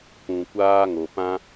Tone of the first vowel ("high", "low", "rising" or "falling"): low